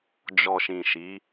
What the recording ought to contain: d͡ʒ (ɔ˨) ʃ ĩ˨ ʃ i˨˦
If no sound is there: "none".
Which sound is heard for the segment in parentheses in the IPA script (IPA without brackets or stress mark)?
ɔ˨